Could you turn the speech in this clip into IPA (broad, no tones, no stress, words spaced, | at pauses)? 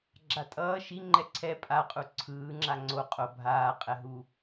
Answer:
ɡ͡ǁatʼʌː ʃi ŋ͡ǃɛǀʰɛ pʼaqʼu ǀʰɯːŋ͡ǁa ŋ͡ǀo qʼo bʱaːqʼɛɦu